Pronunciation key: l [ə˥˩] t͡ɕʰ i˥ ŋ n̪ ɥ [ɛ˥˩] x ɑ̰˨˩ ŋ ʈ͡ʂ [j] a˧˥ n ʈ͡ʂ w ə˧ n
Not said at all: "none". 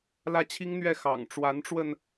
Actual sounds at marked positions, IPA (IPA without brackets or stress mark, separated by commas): ä˥˩, ɛ˥˩, w